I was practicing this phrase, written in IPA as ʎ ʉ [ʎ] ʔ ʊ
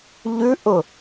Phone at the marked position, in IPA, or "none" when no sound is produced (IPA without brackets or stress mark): none